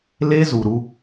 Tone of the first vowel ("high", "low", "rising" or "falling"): high